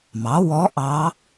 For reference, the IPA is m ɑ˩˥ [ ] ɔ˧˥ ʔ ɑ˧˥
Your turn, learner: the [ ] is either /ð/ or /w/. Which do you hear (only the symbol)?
w